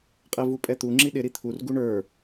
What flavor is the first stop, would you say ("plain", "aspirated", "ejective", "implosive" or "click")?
ejective